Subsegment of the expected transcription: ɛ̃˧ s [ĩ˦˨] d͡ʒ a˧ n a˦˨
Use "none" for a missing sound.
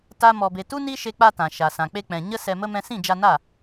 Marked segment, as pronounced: ĩ˦˨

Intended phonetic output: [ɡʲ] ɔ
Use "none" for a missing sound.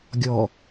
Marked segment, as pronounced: ɡʲ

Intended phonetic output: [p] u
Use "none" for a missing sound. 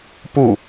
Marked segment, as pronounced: p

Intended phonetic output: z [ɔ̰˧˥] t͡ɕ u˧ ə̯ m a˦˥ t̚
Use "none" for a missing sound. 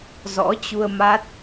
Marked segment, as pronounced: ɔ̰˧˥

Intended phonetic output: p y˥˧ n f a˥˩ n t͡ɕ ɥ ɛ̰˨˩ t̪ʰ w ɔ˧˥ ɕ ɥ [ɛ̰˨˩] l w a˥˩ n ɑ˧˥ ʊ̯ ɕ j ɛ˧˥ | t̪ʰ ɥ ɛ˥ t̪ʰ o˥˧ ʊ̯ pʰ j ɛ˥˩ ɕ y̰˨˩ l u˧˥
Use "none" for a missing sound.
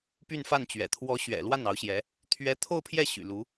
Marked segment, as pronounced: ɛ̰˨˩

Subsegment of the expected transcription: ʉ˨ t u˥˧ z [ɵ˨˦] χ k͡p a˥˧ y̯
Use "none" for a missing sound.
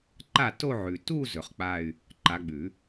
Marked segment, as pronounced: ɵ˨˦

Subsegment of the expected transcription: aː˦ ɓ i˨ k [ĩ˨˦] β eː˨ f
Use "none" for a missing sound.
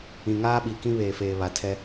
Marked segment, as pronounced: ĩ˦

